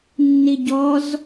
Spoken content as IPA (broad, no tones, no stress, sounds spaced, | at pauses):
nː i ɟ ɔ z